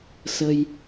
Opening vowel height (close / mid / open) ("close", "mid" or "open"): mid